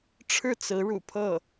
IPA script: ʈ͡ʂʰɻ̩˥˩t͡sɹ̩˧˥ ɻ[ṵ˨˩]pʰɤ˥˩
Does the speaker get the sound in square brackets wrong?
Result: no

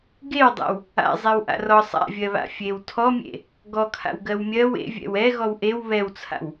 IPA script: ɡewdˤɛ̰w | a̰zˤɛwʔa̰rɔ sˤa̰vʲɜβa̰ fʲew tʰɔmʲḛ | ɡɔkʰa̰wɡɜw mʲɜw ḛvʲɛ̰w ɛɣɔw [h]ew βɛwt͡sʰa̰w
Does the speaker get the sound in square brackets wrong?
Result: yes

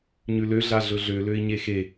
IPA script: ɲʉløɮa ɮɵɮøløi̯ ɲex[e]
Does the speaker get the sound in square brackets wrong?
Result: no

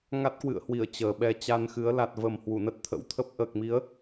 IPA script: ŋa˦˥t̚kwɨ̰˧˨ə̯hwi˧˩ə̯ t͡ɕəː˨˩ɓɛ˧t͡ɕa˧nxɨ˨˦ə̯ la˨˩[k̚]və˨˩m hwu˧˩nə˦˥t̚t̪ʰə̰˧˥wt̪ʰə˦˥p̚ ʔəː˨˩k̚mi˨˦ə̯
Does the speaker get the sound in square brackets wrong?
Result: yes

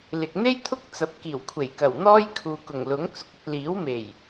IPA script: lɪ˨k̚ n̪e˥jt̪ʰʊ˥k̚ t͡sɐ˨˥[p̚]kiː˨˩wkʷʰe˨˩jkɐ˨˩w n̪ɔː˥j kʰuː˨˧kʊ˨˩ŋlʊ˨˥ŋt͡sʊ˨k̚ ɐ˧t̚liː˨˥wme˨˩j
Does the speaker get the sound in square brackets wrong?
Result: no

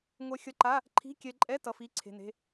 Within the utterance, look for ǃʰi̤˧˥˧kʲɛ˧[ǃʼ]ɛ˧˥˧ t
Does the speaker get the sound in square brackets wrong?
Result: no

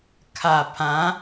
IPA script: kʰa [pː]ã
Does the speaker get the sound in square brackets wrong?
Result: yes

